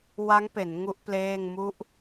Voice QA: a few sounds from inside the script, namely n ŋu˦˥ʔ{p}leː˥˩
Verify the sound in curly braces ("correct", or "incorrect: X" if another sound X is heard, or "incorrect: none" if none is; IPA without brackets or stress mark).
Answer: correct